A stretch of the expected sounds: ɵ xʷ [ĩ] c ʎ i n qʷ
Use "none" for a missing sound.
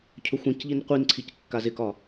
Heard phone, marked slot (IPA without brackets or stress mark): ĩ